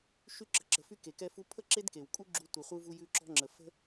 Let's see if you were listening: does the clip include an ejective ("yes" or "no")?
yes